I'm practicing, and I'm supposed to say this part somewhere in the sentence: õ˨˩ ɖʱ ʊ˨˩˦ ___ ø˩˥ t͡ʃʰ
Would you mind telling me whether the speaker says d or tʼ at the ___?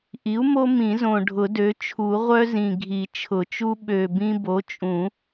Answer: d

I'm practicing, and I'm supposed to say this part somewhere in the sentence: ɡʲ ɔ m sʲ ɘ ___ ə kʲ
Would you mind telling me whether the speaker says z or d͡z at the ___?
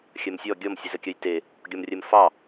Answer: z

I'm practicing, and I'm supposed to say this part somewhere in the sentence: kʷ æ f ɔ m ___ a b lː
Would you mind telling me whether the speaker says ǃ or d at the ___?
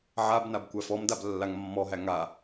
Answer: d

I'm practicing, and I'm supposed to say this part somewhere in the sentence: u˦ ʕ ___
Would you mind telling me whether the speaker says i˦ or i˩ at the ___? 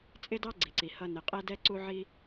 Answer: i˦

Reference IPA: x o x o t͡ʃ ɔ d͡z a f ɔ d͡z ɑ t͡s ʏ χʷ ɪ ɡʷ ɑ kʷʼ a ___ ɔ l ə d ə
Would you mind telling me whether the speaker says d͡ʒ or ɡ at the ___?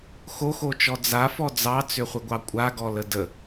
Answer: ɡ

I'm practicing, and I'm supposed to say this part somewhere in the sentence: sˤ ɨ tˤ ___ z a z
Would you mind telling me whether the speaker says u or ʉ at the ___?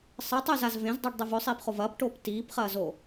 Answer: ʉ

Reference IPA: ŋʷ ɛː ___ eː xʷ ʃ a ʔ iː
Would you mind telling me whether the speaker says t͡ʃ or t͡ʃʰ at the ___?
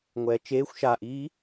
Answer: t͡ʃ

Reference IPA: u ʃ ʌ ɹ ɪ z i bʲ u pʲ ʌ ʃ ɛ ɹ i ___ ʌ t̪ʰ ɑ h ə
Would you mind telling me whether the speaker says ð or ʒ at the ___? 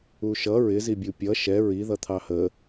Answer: ð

